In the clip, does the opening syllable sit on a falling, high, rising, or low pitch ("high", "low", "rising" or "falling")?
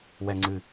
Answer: low